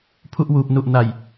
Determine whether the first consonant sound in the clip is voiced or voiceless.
voiceless